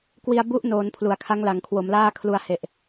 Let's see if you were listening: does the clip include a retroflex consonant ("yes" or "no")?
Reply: no